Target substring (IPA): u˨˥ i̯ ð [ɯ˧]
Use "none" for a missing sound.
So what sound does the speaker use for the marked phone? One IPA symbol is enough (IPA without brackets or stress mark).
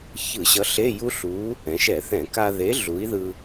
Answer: ɯ˧